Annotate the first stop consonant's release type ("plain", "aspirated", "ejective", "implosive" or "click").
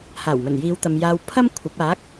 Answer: plain